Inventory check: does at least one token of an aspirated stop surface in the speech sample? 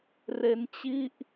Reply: no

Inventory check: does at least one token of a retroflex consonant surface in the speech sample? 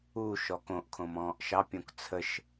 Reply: no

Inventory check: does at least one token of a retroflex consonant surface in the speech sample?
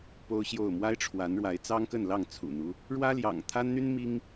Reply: yes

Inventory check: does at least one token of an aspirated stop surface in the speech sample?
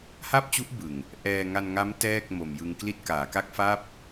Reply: no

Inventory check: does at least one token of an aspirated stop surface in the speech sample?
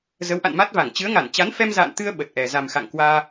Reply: no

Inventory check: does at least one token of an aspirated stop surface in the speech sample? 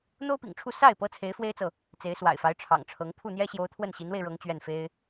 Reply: yes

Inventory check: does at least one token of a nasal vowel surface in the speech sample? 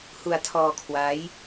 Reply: no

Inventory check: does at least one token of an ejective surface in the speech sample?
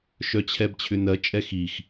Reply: yes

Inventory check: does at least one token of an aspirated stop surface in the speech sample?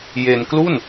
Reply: no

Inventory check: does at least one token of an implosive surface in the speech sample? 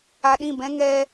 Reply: yes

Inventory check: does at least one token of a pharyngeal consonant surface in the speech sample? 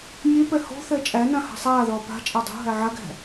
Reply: yes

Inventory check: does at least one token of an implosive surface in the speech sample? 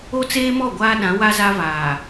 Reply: yes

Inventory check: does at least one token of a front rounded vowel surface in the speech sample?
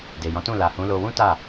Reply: no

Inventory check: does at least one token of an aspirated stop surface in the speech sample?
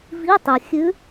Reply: no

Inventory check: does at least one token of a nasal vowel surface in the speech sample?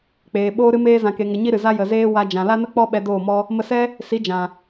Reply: yes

